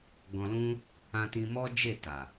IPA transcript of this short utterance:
ɡ ɔ̃˧ l ũ˦ | ã˧ t ĩ˧ m ɔ˦ d͡ʒ e˦˨ t a˨

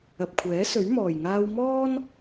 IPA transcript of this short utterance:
ɐ˨ p̚ kʷʰ ɛː˨˥ s ɵ˨˥ ɥ m ɔː˨ j ŋ aː˥ w m ɔː˥ n

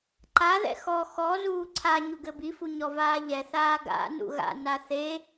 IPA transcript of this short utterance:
ǃ a ð ɛ̰ x ɔ x ɔ z uː ǀʰ a ɲ u ɡ ɘ b i f u ɲ ɔ v aː ʎ ɛ θ aː ɡ a̰ n ṵ ɣ a̰ n a θ e

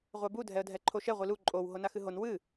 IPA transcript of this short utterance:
ʁʷ a b u dʱ ɛ ə̯ dʱ ɛ ǃʰ o ʃ ɛ ʁʷ i l u ǃʼ o w ɦ o n a x ɨ ɦ o n w ɨ

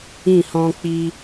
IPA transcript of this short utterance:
ĩ˦˨ h ɔ̃˧ k͡p i˧

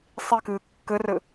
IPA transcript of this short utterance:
sˤ i k ɨː kː ɘ r ɘ

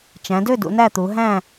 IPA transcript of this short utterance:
t͡ʃ æ̃˩˧ d ø˥˨ d ṵ˩˧ n æ˥˨ t̪ u˩˧ ɦ æ̃˥˨

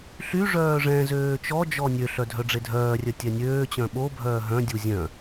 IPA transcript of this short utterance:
ɬ y ʐ œː ʐ ɛ̃ z øː t͡ʃ ɔ d͡ʒ ɔ nʲ ø ɬ œ dʱ œ ɖ͡ʐ e dʱ œː rʲ œ tʲ ɛ nʲ øː t͡ɕ œ̃ ɓ o bʱ œː ɦ œ̃ dʲ u zʲ œ̃

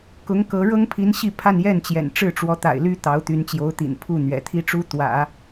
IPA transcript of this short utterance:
k ʊ˧˥ ŋ k ɤ˧˥ ɻ ɤ˥ ŋ pʰ i˧˥ n ɕ i˥˧ pʰ a˥˧ n j ɛ˥˩ n t͡ɕ j ɛ̰˨˩ n ʈ͡ʂ ɻ̩˥˩ ʈ͡ʂ w ɔ˧˥ t̪ a̰˨˩ ɪ̯ l y˥ t̪ ɑ˧˥ ʊ̯ t̪ y˧˥ n t͡ɕ j o˧˥ ʊ̯ t̪ ḭ˨˩ n pʰ u˥˩ n̪ ɥ ɛ̰˨˩ t̪ʰ i˥ ʈ͡ʂ u˥ t̪ w ä̰˨˩˦

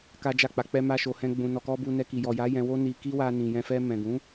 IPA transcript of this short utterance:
k a˦ d͡ʒ a˦˨ k͡p a˧ k͡p ɛ˦ m a˦ ʃ o˧ h ɛ̃˦ ɡ͡b ũ˧ n ɔ˨ k ɔ˧ b u˧ n ɛ˧ k i˨ j ɔ˨ j a˨˦ j ɛ̃˧ w o˦ n i˧ k i˦ w a˧ n ĩ˨ j ɛ̃˧ f ɛ˧ m ɛ̃˨ ɡ ũ˨˦

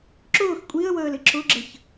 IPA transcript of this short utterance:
ǁ ʊː x kʷʼ i ə̯ w əː l ɪ ǁ ʊ ɡ͡ǁ ə ç

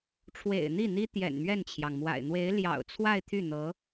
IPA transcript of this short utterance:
ʈ͡ʂʰ w ḛ˨˩ ɪ̯ n̪ i˥˩ n̪ i˥ t̪ j ɛ̰˨˩ n m ɥ ɛ˥˩ n t͡ɕʰ j ɑ˩ ŋ m w a̰˨˩ ɪ̯ n̪ w e˧˥ ɪ̯ l j ɑ̰˨˩ ʊ̯ t͡sʰ w a˥˧ ɪ̯ t̪ʰ y˥˩ n̪ ɤ˧˥

